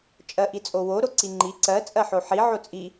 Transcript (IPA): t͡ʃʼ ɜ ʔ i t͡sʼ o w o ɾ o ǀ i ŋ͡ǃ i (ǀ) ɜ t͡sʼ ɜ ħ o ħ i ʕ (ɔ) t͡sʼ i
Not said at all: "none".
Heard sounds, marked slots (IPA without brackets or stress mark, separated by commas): ǀ, o